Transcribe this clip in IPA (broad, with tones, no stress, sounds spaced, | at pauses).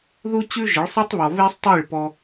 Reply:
ð u˦ t͡ɕ ʉ˦ ʒ ə˨˦ ɭ sˤ i˦ tˤ β ɔ˨ β e˦ sˤ tˤ i˦˨ ɭ p ɔ˧